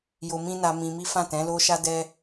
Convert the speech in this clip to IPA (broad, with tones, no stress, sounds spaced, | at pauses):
j o˧ m ĩ˦ n a˧ m ĩ˧ m i˦ f ã˦˨ t ɛ̃˨˦ l o˦ ʃ a˦ d ɛ˦